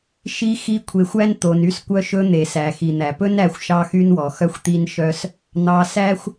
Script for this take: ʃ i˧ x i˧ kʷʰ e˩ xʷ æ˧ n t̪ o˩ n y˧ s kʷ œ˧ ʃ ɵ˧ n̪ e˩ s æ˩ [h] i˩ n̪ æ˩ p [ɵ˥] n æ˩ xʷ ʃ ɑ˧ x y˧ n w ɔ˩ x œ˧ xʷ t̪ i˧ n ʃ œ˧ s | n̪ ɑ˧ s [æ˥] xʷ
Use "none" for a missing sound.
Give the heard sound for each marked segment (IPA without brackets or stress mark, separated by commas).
x, ɵ˥, æ˥